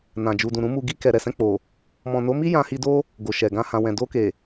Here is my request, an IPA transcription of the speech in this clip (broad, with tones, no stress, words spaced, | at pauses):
nã˨ d͡ʒu˨dũ˨ɾũ˨˦mu˧ ɡi˧kɛ˨ɾɛ˨ sɛ̃˧k͡po˨ | mɔ̃˨no˨˦mi˦ jã˧hi˧do˦ | ɡo˨ ʃɛ˨ɡã˧ hã˨wɛ̃˨ do˧ke˨